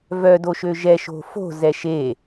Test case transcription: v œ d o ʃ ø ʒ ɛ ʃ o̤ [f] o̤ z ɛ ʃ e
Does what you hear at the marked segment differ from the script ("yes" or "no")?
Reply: no